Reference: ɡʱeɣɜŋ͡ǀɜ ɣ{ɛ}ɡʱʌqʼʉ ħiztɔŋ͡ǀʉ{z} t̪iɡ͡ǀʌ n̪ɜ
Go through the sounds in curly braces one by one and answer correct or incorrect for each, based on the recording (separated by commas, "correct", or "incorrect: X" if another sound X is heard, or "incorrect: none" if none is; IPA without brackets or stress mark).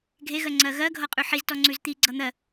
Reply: incorrect: ɜ, correct